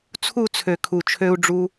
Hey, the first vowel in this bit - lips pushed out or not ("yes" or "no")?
yes